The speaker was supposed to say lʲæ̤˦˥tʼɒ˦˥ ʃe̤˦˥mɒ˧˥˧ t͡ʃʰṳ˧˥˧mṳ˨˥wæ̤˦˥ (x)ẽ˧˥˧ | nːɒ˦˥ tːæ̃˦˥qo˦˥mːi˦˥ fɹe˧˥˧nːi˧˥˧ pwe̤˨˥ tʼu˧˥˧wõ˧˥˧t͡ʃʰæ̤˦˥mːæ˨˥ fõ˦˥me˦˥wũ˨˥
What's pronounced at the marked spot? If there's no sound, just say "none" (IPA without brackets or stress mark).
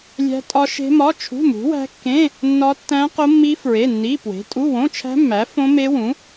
kː